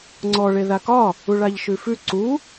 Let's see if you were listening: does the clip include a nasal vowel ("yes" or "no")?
no